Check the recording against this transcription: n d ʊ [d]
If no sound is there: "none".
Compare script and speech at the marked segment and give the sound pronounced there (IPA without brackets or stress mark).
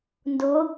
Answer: none